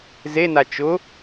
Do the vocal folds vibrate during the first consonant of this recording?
yes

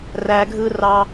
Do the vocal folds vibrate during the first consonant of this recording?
yes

